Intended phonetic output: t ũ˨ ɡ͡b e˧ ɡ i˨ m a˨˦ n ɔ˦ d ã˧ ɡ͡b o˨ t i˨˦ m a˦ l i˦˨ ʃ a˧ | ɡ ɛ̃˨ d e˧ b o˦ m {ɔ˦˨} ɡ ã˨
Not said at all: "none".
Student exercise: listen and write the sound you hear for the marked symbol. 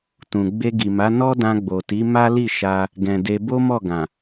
ɔ˦˨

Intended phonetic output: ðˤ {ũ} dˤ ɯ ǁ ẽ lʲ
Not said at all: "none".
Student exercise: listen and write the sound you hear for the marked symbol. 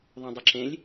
ũ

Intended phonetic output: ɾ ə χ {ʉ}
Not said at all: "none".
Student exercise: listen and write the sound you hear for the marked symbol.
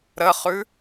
ʉ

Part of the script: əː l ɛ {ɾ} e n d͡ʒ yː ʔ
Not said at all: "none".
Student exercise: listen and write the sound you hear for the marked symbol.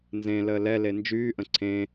l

